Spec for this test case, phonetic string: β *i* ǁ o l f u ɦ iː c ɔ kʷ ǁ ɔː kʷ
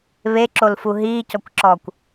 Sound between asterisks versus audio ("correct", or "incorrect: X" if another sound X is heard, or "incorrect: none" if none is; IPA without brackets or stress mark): incorrect: e